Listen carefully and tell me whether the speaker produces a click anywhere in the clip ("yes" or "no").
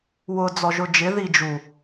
no